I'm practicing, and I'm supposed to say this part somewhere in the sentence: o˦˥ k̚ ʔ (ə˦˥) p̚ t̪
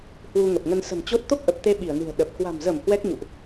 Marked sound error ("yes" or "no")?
yes